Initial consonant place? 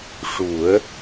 retroflex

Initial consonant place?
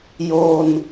palatal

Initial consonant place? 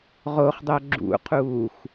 uvular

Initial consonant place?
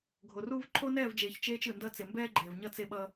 velar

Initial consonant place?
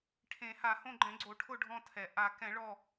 retroflex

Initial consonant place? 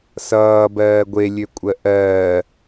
alveolar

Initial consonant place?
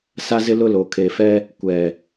alveolar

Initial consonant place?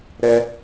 alveolar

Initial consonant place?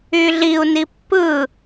alveolar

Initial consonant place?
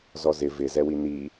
alveolar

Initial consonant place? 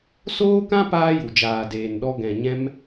alveolar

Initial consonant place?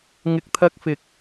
velar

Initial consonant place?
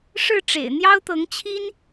retroflex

